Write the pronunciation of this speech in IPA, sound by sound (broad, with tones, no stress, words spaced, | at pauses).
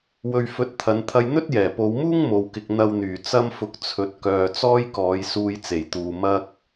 wɵ˧ɥ fɵ˨˥t̚t̪ʰɐ˨˧nt̪ʰɐ˧j n̪ɵ˥t̚jɛː˨˩po˨˧wmuː˥ŋ mo˨wkɪ˨k̚ n̪ɐ˧wn̪yː˨˩ t͡sɐ˥mfʊ˧k̚ t͡sʰɵ˨˥t̚ kœː˨t͡sɔː˥jkɔː˨˧jsuː˧j t͡se˨˩jt̪uː˨ mɐ˥k̚